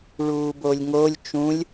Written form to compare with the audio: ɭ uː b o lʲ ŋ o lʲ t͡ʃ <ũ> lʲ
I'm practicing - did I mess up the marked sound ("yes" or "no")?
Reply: no